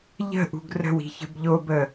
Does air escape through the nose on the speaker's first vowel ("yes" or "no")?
no